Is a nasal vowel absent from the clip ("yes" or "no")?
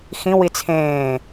no